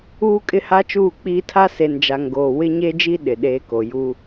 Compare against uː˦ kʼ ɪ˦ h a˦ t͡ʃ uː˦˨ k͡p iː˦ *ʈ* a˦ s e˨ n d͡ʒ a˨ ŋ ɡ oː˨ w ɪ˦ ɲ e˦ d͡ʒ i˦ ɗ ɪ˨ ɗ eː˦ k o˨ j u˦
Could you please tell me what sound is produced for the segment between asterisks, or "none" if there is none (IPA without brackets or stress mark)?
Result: tʰ